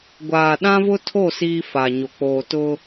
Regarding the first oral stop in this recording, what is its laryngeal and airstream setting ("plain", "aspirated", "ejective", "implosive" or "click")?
plain